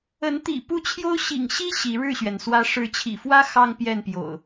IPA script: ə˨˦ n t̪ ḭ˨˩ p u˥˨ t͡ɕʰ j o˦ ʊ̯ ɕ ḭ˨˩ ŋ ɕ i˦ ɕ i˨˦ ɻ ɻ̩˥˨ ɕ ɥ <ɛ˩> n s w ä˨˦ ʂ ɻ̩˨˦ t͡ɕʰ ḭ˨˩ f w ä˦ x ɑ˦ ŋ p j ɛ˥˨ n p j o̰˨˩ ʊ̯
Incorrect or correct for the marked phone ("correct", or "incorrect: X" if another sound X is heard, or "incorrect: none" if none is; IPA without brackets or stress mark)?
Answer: correct